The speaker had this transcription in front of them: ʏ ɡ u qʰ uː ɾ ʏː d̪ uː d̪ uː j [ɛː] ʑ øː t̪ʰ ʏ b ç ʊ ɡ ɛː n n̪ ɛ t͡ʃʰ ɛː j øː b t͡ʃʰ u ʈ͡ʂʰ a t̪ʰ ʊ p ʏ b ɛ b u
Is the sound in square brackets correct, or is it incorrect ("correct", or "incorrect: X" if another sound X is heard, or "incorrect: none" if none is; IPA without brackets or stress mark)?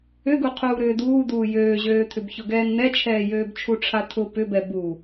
incorrect: øː